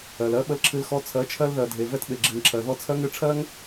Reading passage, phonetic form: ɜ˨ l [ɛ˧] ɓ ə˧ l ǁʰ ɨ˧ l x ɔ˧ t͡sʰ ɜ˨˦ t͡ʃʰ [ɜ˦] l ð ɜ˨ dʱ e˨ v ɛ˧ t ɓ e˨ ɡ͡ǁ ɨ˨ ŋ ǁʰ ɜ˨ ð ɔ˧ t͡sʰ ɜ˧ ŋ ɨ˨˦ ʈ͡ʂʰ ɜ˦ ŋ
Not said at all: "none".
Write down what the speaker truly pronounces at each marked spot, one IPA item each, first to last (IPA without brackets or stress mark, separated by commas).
ɜ˧, ɜ˧